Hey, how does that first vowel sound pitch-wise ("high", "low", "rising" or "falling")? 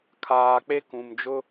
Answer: low